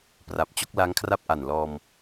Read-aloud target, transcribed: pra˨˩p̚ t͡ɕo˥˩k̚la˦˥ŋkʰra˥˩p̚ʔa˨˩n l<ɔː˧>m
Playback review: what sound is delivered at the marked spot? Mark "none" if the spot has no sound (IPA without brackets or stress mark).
ɔː˧